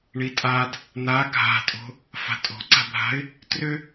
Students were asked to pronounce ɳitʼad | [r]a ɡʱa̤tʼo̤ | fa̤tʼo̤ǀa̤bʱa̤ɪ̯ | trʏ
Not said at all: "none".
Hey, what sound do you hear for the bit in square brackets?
n̪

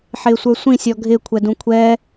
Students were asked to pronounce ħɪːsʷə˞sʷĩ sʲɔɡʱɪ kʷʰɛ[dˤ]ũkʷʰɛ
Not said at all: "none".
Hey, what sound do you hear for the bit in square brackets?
d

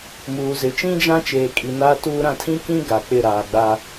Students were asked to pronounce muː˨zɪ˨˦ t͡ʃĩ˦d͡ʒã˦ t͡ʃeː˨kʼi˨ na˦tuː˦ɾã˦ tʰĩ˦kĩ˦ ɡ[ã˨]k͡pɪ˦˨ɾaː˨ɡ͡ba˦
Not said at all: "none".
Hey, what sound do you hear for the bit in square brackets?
a˨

